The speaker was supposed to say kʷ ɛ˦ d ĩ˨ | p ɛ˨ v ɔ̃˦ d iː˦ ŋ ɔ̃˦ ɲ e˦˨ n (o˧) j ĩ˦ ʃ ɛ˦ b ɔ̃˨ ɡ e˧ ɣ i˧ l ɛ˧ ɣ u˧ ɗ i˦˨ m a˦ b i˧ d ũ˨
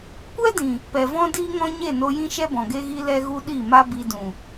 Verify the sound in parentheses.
correct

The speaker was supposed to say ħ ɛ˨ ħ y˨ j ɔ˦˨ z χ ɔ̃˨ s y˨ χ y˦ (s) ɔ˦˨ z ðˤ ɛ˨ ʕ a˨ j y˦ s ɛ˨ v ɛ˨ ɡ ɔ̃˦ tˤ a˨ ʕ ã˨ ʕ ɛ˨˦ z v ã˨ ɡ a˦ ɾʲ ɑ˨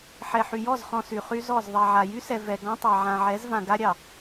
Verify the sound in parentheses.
incorrect: z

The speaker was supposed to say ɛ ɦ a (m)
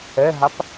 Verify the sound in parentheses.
incorrect: p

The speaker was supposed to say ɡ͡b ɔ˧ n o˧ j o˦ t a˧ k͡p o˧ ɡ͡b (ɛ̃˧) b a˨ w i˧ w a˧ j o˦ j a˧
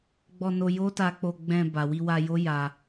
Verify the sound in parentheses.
correct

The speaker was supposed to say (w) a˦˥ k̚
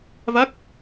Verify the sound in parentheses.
incorrect: v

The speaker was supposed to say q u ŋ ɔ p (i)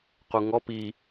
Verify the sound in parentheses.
correct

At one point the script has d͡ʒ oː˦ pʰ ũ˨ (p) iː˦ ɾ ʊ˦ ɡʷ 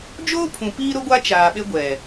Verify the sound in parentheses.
correct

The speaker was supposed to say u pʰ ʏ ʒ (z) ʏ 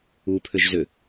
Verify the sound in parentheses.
correct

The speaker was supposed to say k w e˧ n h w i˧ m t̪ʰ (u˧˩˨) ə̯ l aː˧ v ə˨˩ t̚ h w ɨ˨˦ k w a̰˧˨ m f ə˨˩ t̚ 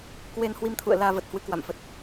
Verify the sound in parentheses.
incorrect: ṵ˧˨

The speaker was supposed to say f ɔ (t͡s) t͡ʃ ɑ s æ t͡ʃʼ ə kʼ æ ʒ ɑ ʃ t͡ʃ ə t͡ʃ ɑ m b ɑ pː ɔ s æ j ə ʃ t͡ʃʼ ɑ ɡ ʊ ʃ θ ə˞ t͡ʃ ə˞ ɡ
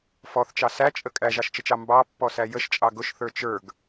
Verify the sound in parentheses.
incorrect: θ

